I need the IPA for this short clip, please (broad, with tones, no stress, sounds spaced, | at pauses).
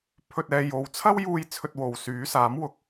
pʰ ɵ˧ t̚ ɛː˧ j o˨ w t͡sʰ ɐ˥ w j uː˧ j t͡sʰ ɵ˧ t̚ w o˨ w s yː˨˥ s aː˨˥ m w ʊ˨˥ k̚